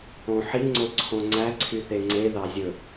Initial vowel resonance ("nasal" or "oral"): nasal